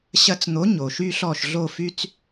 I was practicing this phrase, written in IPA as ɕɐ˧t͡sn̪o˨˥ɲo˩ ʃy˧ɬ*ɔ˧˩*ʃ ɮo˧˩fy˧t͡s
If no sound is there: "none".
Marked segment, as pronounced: ɔ˧˩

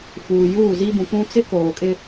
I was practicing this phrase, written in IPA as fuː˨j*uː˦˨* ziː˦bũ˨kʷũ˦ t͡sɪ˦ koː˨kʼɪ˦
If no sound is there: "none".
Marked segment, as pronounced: uː˦˨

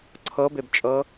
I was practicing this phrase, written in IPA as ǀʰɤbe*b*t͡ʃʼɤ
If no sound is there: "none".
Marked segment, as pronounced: b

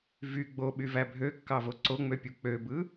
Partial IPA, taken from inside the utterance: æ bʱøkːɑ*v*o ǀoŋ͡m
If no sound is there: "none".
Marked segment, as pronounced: v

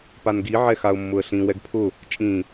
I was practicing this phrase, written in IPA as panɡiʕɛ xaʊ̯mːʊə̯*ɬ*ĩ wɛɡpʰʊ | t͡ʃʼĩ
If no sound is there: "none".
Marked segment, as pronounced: ɬ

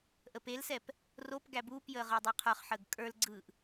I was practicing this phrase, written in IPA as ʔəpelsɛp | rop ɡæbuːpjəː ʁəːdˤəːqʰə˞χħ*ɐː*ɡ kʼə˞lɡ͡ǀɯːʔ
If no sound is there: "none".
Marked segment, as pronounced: əː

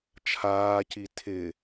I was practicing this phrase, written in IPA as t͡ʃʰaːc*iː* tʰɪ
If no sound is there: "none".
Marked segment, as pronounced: i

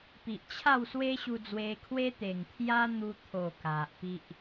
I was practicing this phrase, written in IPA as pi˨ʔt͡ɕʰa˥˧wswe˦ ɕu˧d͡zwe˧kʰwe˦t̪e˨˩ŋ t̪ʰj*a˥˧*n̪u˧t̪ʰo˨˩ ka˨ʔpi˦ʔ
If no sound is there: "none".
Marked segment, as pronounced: a˦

